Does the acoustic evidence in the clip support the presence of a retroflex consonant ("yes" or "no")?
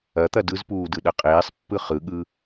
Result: no